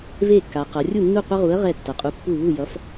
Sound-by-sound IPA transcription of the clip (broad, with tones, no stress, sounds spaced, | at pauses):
v e˥˩ kː a˩˧ q ʌ˩˧ rʲ u˥˩ nː u˥˩ qʷ ʌ˦ ʁ u˨˥ ə̯ ʁ ɛ˥˩ tː ʌ˩˧ qʼ u˨˥ pː u˥˩ β u˥˩ j ʌ˨˥ f